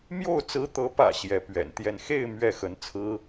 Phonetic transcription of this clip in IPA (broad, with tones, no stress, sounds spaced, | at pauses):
m j o˥˩ ʊ̯ t͡s ɹ̩˧˥ t̪ ɤ˧˥ p ä̰˨˩ ɕ j ɛ˧˥ p ɥ ɛ̰˨˩ n t̪ j ɛ˥˧ n x e˥˧ ɪ̯ m ɥ ɛ˥˩ x ə˧˥ n t͡sʰ ɹ̩˥